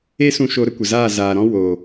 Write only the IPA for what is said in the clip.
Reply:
e˦ s ũ˧ ʃ o˧ ɾ ə˧ kʷ ə˨ z aː˦˨ z aː˨ ɾ ɔ̃˦ w o˨

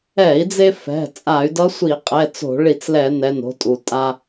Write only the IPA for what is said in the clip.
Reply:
ɛ˧˩˧ i̯ d͡z e˧ f ɛ̤˩˧˩ t͡sʼ a˧˩˧ y̯ d ʌ˧˥ sʷ i˧˩˧ qʼ ɛ˩˧˩ t͡s o̤˧˩˧ ɭ i˧˩˧ t͡s l ɛ˧˩˧ n ɛ˩˧˩ n o̤˧ tʼ u˩ tʼ a˧

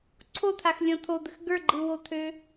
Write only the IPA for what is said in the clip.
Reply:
ǀʰ o t̪ʰ a x lʲ ɔ̃ t̪ʰ o d̪ ə x ɡ ə˞ ɡ͡ǃ ɯ w o t̪ʰ ø

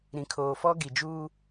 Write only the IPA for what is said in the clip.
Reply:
ɾ ĩ˨ kʰ oː˨ f ɔ˦ ɡ i˨ d͡ʒ uː˦

